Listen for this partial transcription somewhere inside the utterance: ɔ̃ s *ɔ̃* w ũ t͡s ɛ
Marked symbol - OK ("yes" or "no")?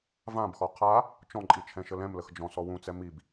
no